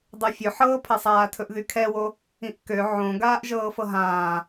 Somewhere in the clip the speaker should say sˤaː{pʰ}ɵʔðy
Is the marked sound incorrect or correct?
incorrect